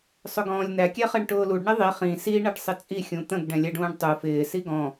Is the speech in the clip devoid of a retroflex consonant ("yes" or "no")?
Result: no